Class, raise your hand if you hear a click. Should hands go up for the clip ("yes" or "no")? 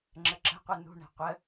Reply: yes